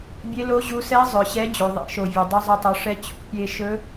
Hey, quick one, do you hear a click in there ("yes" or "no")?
no